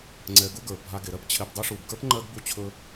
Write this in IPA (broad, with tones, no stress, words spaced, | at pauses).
ŋ͡ǀɛ˨ɡu˦ɡə˞˩ bʱa˨ɡe˩ɾɜ˥p t͡ɕʰe˨b dˤo˦ʂu˩bɡə˞˥pŋ͡ǃɜ˦ɡ bu˥t͡ɕʰɵ˥